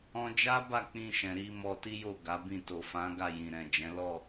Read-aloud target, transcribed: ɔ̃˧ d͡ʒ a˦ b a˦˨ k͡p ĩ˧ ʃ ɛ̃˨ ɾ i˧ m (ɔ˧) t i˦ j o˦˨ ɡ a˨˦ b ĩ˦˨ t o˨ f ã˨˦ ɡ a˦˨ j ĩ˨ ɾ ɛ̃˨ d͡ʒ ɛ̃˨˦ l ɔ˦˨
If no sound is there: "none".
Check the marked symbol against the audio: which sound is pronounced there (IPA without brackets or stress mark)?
ɔ˧